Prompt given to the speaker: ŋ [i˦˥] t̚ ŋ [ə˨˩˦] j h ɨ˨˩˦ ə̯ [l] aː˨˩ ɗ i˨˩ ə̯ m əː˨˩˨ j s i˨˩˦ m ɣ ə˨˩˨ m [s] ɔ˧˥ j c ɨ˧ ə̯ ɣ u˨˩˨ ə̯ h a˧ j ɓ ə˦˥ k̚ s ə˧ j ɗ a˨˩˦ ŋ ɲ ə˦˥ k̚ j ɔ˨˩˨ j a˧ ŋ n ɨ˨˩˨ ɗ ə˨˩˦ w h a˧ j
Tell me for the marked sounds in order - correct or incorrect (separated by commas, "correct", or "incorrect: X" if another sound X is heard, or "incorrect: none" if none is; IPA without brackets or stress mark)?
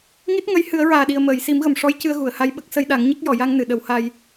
correct, incorrect: ə˧˥, incorrect: ɹ, incorrect: ʂ